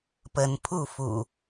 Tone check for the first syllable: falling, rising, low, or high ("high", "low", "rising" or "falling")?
rising